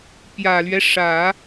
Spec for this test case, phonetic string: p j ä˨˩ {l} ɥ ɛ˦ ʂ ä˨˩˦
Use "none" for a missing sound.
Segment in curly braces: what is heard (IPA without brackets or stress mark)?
l